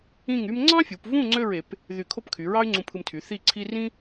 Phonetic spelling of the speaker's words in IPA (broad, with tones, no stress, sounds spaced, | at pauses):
ĩ˥˧ ŋ y˥ m ŋ͡ǀ ɑ̃˥ fʲ u˩˧ p v ũ˥˧ ŋ͡ǀ ø˥˧ ɹ e˩˧ p | ð y˧˩ kʰ o˥˧ p kʰ y˩˧ ɹ ɑ˥ y̯ ŋ͡ǀ ũ˧ pʰ ɯ˧ m tʰ y˩˧ θ i˥˧ ǀʰ i˥ r ĩ˥